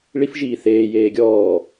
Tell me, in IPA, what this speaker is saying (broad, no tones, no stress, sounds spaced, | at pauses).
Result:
ɭ i f ʒ iː θ eː j eː ɡʲ ɔː